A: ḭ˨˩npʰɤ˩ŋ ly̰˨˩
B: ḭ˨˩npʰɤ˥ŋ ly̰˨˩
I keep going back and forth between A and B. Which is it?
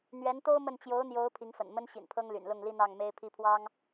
B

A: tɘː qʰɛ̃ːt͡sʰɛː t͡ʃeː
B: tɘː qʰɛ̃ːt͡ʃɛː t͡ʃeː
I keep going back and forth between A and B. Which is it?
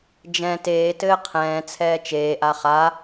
A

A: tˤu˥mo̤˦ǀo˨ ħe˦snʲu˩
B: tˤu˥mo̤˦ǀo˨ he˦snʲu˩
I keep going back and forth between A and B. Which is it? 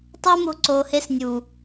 B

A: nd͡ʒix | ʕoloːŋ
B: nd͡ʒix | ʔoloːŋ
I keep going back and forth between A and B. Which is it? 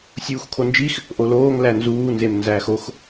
B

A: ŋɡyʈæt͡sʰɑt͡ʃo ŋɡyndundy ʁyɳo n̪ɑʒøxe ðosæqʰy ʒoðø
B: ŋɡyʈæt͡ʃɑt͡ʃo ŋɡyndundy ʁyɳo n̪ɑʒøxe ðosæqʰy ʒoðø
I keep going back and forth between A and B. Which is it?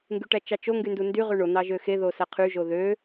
B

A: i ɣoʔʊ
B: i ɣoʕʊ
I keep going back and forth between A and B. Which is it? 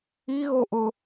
A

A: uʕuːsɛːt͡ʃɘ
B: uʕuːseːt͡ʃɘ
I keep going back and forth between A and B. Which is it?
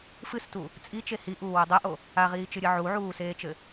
B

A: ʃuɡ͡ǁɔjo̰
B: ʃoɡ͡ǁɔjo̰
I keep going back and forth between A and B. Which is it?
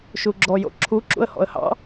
A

